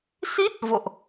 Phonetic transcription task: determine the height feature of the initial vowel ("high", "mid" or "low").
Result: high